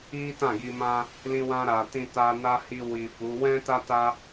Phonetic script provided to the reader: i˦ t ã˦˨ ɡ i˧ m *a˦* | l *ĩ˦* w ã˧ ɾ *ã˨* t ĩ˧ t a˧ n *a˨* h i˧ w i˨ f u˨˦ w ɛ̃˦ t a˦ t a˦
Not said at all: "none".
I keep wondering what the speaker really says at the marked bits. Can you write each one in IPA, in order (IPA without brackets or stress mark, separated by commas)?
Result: ã˦, ĩ˧, a˨, a˦